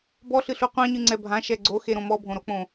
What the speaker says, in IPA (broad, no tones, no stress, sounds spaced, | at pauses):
b ɔ ɬ ɨ ɬ u qʷ ã ɲ ɨ ŋ͡ǀ ɛ bʱ ã ʃ ɛ ɡ͡ǀ o x e ɾ õ m ɔ bʱ õ ɾ o k͡p õ